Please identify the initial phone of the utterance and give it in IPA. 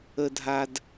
ə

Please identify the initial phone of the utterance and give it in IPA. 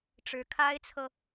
ʈ͡ʂ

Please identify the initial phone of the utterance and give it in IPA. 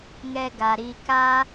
ŋ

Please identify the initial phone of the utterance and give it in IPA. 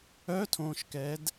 œ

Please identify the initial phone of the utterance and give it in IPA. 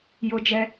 j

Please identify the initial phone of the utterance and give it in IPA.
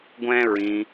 ɡʷ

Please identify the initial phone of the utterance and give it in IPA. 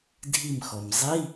dʱ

